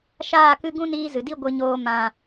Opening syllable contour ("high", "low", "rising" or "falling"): falling